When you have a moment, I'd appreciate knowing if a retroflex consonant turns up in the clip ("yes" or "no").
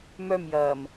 no